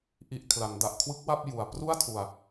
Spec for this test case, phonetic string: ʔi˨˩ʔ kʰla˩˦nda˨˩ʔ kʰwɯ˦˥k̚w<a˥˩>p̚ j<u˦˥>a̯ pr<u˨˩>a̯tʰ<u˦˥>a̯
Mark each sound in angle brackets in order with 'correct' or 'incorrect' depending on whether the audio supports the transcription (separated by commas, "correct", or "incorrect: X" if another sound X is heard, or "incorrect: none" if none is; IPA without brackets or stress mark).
correct, incorrect: u˨˩, incorrect: u˥˩, incorrect: u˧